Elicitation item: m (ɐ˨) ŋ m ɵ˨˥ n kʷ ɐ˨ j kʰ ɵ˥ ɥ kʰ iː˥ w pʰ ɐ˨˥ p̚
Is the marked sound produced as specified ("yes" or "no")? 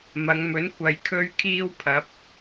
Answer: no